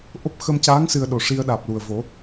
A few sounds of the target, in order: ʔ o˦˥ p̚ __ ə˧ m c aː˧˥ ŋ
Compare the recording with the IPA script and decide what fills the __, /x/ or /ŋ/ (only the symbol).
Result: x